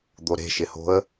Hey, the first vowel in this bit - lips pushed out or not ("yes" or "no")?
yes